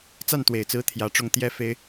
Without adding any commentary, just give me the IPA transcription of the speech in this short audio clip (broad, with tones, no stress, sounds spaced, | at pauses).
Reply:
t͡s a˥˩ n t̪ w e˨˩ ɪ̯ t͡s ɹ̩˧˥ t̪ʰ j ä˧˥ ʈ͡ʂ ʊ˥˩ ŋ t̪ j ɛ˥ f e˥ ɪ̯